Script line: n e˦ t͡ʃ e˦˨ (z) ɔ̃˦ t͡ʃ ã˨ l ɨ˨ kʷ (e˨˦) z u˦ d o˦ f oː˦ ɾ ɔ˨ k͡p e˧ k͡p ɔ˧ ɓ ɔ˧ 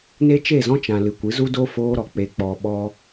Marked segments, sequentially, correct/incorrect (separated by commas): correct, incorrect